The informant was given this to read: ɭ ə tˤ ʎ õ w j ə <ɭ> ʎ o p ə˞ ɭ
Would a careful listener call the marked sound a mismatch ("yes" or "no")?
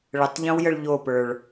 no